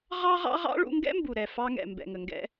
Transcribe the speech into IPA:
ʁɑ˥ʁɑ̰˥ʁɑ̰˥ ɭṵ˧ŋɡɛ̰˥mbu˩ɾɛ˩ fɑ˧ŋɛ̰˩ mbɛ̰˩ŋə˩ŋɡɛ̰˧

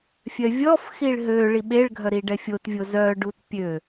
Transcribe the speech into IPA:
fʲœvʲɔfxiɭ ɦø ɭiɓeɭɡʱœ ɾiɖɛfʲotvʲo zœɖut pʲø

